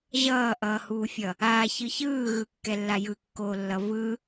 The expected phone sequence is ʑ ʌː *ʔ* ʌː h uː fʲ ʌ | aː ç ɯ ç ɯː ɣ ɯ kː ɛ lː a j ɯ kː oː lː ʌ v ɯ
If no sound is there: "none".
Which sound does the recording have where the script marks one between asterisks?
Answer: ʔ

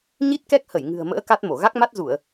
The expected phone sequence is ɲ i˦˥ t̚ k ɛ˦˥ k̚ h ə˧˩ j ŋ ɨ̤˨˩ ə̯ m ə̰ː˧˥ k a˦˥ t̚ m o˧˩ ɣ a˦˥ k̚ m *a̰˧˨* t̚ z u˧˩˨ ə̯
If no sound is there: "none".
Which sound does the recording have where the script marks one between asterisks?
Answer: a˦˥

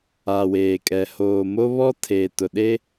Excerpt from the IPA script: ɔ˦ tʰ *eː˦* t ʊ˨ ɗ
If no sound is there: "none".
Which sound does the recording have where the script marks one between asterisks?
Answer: eː˨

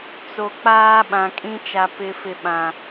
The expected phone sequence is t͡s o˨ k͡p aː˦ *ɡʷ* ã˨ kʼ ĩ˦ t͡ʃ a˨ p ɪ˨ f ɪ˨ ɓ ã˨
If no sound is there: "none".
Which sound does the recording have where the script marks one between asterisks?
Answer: ɓ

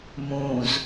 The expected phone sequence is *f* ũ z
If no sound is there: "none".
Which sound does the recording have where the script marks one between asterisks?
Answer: m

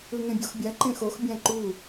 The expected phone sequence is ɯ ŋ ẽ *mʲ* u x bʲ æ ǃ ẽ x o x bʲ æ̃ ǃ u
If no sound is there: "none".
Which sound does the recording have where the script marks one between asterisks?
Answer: bʲ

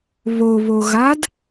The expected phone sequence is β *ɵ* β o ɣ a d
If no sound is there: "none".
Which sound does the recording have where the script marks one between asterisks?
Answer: o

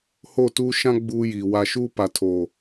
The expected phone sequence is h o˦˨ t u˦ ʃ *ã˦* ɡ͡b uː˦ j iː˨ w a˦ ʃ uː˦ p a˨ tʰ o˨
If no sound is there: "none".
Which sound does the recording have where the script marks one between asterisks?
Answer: ã˦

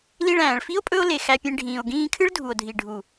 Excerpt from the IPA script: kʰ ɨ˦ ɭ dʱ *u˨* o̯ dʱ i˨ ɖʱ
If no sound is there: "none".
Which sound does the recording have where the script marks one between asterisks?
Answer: u˨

